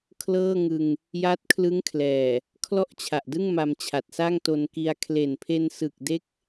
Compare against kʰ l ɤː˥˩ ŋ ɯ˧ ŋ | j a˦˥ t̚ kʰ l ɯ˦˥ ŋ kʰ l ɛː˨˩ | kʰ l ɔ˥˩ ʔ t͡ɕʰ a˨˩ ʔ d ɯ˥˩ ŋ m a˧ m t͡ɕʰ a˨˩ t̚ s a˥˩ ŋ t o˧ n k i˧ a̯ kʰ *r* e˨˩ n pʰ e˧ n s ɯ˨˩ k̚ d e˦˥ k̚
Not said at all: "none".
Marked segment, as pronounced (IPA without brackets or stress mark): l